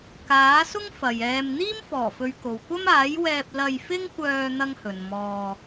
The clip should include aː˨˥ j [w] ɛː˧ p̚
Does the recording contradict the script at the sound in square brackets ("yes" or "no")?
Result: no